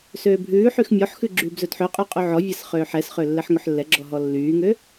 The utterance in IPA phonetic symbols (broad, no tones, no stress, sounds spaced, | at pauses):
s øː bʱ ʉː ħ y x mʲ ɔ ħ x ʉ ɡ͡ǁ yː b z ɵ d ħ ø qʼ ʉ qʼ ʉ ʕ ɔ vʲ æ s χ øː ħ ɛ s χ ø lː ɛ ħ ŋ ɵ ħ lː ɛ ɡ͡ǁ ɔ ɦ ɔ lː yː ŋ ø